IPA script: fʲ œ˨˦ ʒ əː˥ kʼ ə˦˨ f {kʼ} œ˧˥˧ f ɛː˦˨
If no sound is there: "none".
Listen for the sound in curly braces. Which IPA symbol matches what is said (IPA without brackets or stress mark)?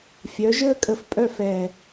pʼ